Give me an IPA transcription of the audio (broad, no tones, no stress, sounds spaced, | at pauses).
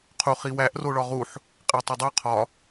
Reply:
qʰ u χ i w æ ʔ r o ɭ ɒ ʁ u ħ | qʼ e tˤ e dˤ o qʰ ɒ